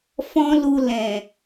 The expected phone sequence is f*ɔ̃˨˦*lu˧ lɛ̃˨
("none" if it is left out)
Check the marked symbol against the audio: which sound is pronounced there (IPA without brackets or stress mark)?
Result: ɔ̃˦